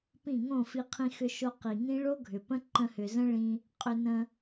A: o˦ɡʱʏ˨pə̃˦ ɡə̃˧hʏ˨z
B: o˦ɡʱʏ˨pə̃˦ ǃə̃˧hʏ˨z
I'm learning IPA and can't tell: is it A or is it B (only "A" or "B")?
B